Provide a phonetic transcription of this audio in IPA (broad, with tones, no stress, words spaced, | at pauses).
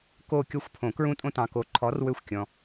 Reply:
ko˦˨ kʲɔ˦˨xʷpʰõ˨˩˦ kɹũ˦tʼõ˦tɑ̃˨ko˨˥ ǃʰɔ˨˥rwø˦˨xʷ kʲɔ̃˨